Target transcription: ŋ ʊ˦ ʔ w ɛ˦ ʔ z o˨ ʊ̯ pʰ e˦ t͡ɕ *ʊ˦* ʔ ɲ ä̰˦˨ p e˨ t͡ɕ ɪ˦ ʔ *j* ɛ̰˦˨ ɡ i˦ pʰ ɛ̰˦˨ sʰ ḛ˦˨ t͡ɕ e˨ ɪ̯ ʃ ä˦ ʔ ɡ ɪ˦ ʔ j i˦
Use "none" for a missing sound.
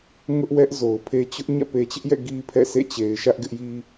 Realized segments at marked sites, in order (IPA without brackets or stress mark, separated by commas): ʊ˦, j